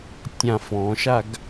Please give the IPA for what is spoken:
tʲ ã f ɔ̃ ʃ a ɡ

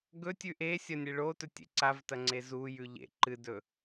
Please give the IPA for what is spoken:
ɡ ɵ tʲ ʉ ʔ e sʲ ɐ nʲ e ɭ o t ɵ tʲ ḛ ǀ a v t ɐ ŋ͡ǀ e z u j ʉ ʎ ḛ ǃ ɨ d ɵ

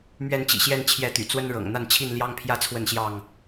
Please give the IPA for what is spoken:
m ɥ ɛ˥˨ n t͡ɕ ḭ˨˩ ɕ j ɛ˥˨ n t͡ɕʰ j ɛ˥˨ t̪ y̰˨˩ t͡s w ə˦ n ɻ ɤ̰˨˩ ŋ n̪ a˥˨ n t͡ɕʰ i˥˨ n l j ɑ˦ ŋ pʰ j ä˦ t͡sʰ w ə˥˨ n ɕ j ɑ˥˨ ŋ

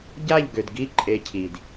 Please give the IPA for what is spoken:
ɟ a˦˨ ʎ ɡ ø˨ d ɡ i˦ ǃʼ e˦ cʰ i˨ d

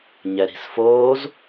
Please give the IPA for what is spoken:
ɲ ɛ ɾ i̤ s f oː z

